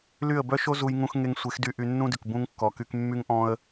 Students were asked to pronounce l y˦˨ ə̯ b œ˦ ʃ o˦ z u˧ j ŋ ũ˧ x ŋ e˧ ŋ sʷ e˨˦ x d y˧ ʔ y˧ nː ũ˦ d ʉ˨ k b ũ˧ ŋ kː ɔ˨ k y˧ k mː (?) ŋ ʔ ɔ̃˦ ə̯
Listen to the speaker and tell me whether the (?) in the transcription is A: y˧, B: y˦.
B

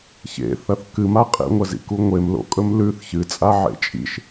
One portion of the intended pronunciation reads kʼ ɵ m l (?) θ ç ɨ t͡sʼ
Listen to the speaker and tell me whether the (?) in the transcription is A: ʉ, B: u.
A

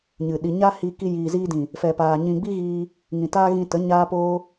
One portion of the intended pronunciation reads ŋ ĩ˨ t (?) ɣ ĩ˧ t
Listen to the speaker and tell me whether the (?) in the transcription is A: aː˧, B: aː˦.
B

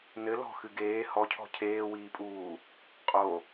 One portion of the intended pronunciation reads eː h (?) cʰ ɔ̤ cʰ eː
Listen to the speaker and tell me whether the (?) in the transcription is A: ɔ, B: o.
A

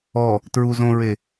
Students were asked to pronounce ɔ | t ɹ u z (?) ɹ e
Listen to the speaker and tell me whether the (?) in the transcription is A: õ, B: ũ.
A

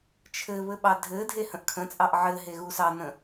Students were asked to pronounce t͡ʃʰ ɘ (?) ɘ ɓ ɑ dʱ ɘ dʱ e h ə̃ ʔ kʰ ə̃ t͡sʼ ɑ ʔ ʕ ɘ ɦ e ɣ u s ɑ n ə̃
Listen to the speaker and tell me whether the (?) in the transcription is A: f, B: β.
B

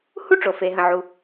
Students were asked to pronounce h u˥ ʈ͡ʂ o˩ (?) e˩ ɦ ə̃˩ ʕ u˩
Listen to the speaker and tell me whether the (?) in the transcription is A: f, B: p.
A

